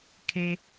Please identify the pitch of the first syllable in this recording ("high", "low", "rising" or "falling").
low